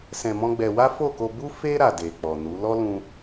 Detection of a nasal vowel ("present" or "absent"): present